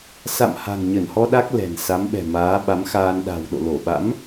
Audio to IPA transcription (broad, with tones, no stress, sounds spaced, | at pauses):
s a̰˧˨ m h a̤˨˩ ŋ ɲ ə˧˩ n h ɔ˧ ɗ a˦˥ k̚ l ɛ̤˨˩ n s a˨˦ m ɓ ɛ̤˨˩ m aː˨˦ ɓ a˨˦ m x aː˧ n ɗ a̤˨˩ w ɗ o̰˧˨ l o˧˩ ɓ a̰˧˥ m